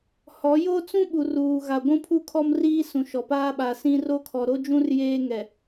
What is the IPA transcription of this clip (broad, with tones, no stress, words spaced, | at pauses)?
hɔ˨˦jo˦t͡sũ˦ ɓu˨ruː˨ ɣa˨ɡʷũ˦pʰu˦ kʰɔ˦mriː˦sũ˨ʃɔ˨ paː˦ɓa˨sĩ˦ ro˦kʰɔ˨ ɾo˦d͡ʒũ˦r jeː˦ŋɛ˨